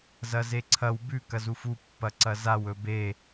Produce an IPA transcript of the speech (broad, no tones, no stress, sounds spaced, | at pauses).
z ɐ z e ǀʰ ɐ w b ʉ k ɐ z u f u pː ɐ ǀ ɐ z a w ɵ b e